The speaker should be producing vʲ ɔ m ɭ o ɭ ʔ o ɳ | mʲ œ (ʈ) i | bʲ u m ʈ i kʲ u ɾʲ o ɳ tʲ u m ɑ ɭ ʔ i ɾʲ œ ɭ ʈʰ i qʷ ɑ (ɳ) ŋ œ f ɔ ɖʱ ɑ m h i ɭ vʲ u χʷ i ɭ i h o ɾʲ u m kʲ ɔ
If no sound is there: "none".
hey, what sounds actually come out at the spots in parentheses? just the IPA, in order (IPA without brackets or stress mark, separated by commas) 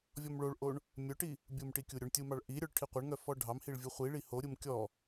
ʈ, ɳ